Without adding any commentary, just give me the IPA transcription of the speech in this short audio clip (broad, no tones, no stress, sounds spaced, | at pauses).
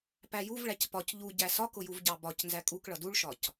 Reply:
p æ j u v ɭ æ c p ɒ c ʎ u ɟ æ s ɒ k ʊ j u v ɟ ɑ b ɒ c n z æ kʼ u k ɭ ʌ d u ɭ ʃ ɒ c